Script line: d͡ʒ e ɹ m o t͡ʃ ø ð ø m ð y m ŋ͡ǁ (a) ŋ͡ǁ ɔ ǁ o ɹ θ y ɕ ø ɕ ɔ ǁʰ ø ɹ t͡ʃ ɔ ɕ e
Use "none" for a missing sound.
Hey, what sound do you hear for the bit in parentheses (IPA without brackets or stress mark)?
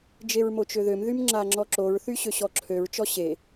a